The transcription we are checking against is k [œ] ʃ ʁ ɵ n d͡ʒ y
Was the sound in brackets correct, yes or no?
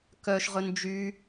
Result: yes